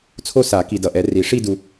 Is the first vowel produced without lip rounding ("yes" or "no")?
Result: no